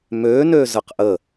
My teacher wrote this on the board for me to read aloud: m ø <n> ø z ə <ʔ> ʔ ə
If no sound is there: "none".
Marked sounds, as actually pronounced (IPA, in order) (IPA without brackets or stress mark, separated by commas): n, q